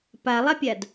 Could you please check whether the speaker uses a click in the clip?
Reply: no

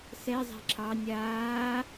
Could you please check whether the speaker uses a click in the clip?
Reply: yes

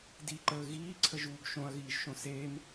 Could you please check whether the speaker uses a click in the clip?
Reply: yes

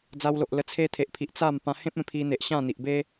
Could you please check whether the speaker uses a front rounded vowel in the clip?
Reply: no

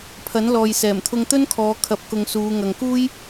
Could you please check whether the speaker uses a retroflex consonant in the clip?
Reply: no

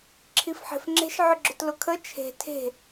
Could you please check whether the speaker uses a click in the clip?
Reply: yes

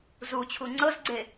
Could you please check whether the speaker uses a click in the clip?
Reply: yes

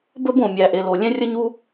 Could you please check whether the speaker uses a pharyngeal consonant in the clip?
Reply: no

